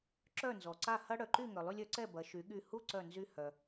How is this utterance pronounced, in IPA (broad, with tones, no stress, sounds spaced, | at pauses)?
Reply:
ǁ œ˥˩ n z ɔ˩ ǀ a˥˩ h ɐ˥ ɽ œ˩ ǃ y˥˩ ŋ œ˩ lˠ y˧ lʲ œ˩˥ ǀ ɛ˥˩ b ɐ˩˥ ʃ y˩˥ ɠ y˥˩ h u˥ ǀ œ˥˩ n z y˥ h œ˩